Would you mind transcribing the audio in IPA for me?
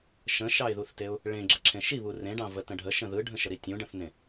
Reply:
ʃ ə̃ ʃ ɑ ɪ̯ ð u θ t e ʊ̯ | ɭ ẽ ɡ͡ǁ ə ǁʰ ẽ ʃ i β u r ẽ ɖ ɑ̃ v ə t ə̃ ɖʱ ə ʃ ə̃ ð ɯ ɖʱ ə̃ ʃ ə ɾ i tʲ ũ ɖ ə̃ θ n ẽ

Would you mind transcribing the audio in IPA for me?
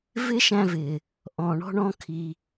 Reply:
v ɪ˥ ʃ æ̃˦ v ɪ˩ | ʔ ɔ̃˨ ɳ ɔ̤˦ ɳ ɔ̃˥ kʰ i˨

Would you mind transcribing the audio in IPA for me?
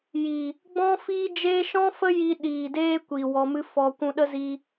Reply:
j iː˨ | ɡ͡b ɔ̃˦ f iː˦ d͡ʒ eː˦ ʃ ɔ̃˦ f ə˦ j i˧ ɗ iː˨ d eː˧ kʷ i˨ w ɔ˧ m ɨ˦ f ɔ˧ kʷ ũ˧ ɗ ə˦ z i˧

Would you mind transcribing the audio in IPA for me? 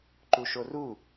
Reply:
ǃ u ʃ o r u

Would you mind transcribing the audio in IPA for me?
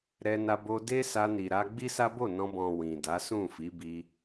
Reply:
ɾ ɛ˧ n a˧ b o˧ d e˦ s a˧ n i˨ ɾ a˧ ɡ͡b i˦ s a˦ b o˦˨ n ɔ̃˧ b ɔ̃˨ w ĩ˨ d a˨˦ s ũ˦˨ f i˨˦ b i˧

